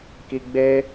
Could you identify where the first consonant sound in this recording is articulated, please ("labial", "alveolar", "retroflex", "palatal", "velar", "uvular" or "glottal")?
velar